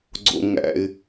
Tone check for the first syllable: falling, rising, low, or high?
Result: high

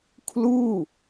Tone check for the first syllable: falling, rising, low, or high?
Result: falling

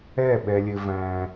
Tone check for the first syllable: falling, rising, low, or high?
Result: falling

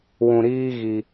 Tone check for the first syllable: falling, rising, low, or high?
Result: low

